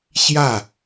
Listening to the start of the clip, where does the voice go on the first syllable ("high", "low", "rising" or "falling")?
falling